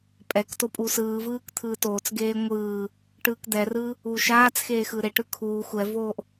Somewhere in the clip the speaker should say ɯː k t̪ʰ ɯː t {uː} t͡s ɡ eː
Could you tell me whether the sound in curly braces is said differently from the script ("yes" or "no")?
yes